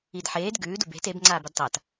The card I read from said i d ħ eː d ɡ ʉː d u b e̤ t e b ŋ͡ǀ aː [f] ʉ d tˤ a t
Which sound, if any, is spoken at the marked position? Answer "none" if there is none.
b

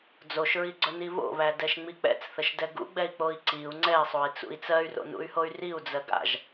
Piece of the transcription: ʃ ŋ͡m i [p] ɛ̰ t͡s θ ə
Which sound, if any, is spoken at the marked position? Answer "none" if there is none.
k͡p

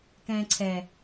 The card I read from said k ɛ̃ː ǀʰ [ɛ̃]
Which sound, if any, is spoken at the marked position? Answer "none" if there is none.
ɛ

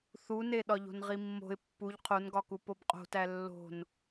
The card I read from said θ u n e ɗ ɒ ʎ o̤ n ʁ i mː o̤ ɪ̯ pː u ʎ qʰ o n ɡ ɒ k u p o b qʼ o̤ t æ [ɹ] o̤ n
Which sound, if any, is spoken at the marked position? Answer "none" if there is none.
lː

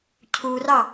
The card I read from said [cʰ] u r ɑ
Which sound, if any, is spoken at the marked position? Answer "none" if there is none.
cʰ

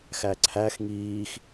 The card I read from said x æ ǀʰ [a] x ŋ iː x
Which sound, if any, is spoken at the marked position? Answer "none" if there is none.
æ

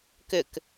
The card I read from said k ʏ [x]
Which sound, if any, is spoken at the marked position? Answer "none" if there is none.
k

